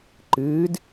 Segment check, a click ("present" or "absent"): present